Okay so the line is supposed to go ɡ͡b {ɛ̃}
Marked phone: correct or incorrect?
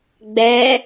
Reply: incorrect